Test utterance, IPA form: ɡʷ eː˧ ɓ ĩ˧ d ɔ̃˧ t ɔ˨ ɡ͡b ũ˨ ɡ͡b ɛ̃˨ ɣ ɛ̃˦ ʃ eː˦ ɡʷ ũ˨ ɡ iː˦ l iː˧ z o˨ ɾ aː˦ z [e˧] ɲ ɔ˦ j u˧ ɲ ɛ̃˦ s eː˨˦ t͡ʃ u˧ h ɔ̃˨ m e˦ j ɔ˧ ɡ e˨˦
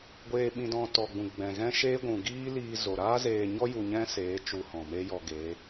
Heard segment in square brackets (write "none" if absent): eː˧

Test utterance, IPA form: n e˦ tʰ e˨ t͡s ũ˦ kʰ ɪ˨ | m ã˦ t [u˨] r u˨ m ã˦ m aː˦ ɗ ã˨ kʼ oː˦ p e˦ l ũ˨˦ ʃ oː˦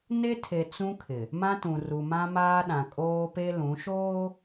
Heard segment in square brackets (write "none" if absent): ũ˨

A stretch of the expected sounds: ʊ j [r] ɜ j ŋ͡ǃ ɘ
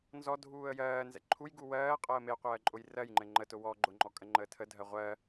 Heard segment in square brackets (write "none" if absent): r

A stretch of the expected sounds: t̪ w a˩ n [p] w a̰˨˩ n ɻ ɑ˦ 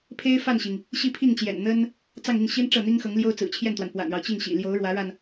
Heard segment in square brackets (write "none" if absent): p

